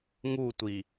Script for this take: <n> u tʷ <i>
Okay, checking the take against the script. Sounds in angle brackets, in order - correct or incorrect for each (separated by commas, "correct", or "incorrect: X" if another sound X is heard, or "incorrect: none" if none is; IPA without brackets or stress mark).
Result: incorrect: ŋ, correct